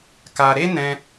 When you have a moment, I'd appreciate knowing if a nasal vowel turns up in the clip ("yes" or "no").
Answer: yes